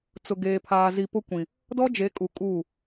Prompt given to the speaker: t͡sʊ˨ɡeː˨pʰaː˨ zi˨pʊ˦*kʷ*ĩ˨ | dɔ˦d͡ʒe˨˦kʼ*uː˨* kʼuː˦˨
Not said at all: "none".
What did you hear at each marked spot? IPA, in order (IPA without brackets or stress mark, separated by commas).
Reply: kʷ, u˨